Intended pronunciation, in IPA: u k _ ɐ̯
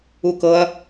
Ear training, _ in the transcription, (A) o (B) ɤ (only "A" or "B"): B